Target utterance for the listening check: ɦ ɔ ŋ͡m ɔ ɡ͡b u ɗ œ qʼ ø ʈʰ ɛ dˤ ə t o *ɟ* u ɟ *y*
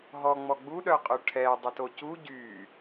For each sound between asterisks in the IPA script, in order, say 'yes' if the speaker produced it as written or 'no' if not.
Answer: no, yes

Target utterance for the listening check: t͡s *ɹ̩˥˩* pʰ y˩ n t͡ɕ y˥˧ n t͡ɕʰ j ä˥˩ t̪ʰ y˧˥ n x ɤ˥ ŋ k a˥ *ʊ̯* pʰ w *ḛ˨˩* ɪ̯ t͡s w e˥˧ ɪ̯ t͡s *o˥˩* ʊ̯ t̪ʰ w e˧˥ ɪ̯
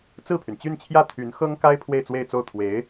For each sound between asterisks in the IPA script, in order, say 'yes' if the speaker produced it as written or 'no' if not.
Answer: yes, no, no, yes

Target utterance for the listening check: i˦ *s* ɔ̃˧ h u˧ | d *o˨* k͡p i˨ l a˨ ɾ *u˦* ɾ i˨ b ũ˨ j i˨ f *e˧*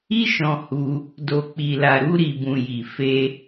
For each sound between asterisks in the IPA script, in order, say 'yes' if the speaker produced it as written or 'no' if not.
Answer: no, yes, no, yes

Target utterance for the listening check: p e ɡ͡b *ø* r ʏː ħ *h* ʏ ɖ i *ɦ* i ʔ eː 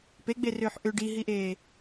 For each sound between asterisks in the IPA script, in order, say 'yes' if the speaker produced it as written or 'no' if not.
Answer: no, no, yes

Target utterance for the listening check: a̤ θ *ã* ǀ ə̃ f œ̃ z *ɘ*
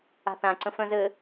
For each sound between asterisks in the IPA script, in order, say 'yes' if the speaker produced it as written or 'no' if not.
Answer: yes, yes

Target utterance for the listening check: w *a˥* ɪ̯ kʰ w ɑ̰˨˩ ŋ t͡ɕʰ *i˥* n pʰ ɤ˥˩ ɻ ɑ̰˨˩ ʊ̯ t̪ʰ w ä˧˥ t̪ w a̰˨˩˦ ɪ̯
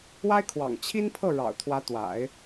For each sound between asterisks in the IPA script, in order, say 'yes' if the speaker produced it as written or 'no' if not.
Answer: yes, yes

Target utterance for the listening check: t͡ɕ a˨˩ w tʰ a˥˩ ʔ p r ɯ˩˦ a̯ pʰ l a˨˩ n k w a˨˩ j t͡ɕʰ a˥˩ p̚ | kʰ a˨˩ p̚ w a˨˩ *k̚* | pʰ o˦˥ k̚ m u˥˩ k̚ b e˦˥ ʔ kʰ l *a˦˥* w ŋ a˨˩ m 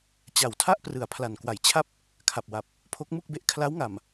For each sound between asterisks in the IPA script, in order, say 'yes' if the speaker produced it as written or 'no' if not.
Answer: no, yes

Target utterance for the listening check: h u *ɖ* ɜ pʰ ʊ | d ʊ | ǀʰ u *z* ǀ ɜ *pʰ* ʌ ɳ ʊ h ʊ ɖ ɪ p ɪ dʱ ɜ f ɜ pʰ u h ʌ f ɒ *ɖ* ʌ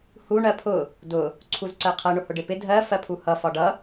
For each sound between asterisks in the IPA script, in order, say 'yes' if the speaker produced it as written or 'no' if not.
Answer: no, yes, no, yes

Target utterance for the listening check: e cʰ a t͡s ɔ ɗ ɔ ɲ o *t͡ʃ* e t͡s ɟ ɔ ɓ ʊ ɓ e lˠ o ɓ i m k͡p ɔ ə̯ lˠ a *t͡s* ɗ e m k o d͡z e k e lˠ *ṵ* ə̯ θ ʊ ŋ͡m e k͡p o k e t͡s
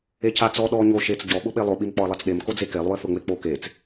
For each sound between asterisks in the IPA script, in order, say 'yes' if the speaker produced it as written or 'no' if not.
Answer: no, yes, no

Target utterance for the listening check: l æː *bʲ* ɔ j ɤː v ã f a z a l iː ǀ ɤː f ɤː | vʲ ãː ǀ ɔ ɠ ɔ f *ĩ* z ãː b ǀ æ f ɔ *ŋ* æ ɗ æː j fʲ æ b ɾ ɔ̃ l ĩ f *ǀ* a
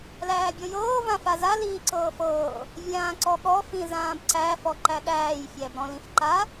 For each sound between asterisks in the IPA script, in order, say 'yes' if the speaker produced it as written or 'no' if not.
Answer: yes, yes, no, no

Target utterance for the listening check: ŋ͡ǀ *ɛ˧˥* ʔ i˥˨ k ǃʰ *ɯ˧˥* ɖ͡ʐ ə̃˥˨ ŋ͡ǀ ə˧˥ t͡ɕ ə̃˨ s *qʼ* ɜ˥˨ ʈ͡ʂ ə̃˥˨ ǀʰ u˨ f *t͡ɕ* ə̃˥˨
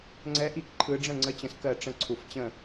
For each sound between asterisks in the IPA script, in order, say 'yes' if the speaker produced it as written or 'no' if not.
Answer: yes, yes, no, yes

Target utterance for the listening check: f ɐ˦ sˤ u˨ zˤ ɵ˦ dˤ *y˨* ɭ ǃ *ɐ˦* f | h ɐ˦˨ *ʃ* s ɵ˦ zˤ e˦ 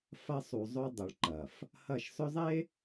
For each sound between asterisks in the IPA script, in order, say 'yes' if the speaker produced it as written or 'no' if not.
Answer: no, no, yes

